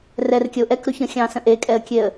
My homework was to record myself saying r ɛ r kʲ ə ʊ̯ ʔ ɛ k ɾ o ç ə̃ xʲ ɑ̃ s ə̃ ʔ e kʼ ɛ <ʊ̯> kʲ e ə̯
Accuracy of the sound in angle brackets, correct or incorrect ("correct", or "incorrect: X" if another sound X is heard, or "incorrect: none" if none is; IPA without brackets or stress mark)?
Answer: incorrect: ə̯